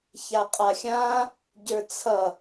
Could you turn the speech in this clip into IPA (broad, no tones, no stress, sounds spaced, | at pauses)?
ç a qʼ a xʲ ã | ɟ ə˞ t͡sʰ ʌ